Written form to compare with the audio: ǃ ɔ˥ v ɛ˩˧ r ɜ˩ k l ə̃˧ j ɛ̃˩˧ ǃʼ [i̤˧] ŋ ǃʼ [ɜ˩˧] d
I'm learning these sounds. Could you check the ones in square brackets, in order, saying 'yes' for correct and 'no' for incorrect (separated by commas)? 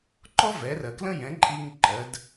no, yes